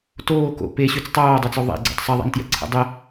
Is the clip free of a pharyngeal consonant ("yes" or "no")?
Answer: yes